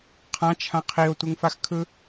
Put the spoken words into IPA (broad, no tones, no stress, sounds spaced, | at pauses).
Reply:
qʰ ã t͡ʃʰ ã qʰ i o̯ tʷ ɯ ŋ f a x kʰ ɯ